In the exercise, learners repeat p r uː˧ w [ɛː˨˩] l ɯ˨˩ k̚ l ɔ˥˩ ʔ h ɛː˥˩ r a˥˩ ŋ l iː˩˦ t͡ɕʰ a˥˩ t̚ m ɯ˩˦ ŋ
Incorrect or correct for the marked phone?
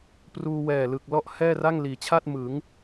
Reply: correct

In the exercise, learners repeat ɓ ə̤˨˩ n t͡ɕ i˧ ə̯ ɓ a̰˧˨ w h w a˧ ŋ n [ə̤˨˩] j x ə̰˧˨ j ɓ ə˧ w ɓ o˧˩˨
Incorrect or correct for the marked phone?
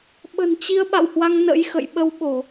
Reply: incorrect: ə̰˧˥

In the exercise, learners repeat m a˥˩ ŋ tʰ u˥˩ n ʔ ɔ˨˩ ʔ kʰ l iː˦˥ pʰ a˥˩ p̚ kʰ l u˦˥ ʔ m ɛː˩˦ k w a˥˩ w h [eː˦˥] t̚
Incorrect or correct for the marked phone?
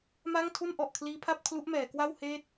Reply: incorrect: eː˥˩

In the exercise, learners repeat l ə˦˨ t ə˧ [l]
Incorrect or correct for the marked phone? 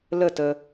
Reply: incorrect: none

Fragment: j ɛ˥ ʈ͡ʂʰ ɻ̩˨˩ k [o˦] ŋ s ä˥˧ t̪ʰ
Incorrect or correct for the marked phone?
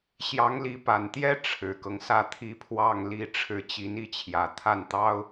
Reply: incorrect: ɤ˦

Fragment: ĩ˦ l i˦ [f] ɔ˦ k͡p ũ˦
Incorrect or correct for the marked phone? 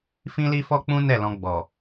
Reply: correct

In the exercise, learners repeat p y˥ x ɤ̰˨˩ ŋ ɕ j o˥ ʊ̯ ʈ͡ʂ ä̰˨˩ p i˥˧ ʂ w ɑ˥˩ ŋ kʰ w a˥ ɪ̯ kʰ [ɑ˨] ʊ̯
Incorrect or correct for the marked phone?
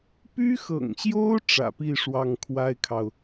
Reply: correct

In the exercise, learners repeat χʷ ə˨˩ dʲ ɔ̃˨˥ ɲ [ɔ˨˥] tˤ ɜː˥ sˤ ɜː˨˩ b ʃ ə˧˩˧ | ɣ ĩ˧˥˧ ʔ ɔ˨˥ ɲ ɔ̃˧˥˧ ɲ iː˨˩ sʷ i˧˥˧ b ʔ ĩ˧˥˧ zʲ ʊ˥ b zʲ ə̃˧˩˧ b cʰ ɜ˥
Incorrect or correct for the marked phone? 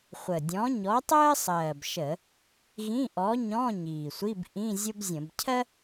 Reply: correct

